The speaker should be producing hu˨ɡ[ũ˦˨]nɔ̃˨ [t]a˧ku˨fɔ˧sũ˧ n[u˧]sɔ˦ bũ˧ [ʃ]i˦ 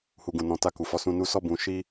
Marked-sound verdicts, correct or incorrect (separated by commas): incorrect, correct, correct, correct